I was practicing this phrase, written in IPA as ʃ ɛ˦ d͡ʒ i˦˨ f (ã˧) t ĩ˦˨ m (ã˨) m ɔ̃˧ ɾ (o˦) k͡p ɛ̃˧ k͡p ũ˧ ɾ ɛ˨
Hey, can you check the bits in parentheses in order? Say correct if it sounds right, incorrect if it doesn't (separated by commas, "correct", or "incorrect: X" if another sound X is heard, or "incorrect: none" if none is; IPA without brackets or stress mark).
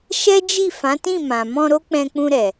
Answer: incorrect: ã˨˦, correct, correct